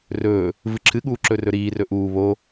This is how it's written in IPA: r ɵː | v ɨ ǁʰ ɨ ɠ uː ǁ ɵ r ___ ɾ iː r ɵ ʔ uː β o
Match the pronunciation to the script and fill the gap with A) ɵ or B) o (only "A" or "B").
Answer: A